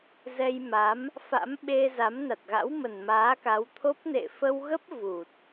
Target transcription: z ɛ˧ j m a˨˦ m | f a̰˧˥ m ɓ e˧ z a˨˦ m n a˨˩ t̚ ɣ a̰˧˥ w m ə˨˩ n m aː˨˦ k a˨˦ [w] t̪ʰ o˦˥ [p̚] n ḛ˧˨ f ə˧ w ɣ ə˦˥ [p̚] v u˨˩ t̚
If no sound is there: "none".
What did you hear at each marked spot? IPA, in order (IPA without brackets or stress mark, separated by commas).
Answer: w, p̚, p̚